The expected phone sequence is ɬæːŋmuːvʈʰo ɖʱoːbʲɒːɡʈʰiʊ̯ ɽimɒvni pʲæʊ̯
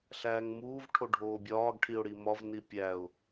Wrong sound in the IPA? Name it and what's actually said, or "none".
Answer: none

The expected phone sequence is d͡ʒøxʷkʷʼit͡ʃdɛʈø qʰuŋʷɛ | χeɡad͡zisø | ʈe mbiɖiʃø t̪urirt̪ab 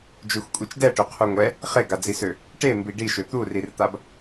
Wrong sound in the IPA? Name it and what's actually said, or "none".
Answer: none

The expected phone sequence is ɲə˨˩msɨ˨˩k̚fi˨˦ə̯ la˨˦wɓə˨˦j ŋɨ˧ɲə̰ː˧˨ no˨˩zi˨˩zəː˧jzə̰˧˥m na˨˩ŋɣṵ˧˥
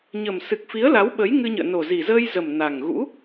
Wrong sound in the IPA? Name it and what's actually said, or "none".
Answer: ə̰˧˥ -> ə˨˩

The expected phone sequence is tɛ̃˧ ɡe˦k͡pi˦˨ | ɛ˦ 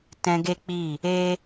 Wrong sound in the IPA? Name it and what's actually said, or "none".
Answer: ɛ˦ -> e˦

